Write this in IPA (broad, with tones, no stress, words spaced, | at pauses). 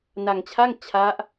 na˧ŋt͡ɕʰa˥˩ŋ t͡ɕʰa˦˥ʔ